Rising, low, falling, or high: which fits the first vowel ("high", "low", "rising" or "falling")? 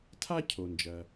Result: high